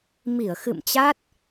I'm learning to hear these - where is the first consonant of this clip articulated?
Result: lips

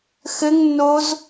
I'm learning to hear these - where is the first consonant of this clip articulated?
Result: velum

